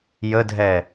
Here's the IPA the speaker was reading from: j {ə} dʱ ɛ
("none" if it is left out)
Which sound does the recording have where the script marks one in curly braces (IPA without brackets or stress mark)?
ə